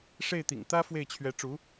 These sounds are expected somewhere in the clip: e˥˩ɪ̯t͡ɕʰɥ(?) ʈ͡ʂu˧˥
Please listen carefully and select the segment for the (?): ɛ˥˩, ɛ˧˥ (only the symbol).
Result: ɛ˧˥